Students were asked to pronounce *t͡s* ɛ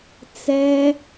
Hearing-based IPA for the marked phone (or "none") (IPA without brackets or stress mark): t͡s